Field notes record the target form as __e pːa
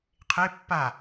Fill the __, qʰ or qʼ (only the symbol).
qʰ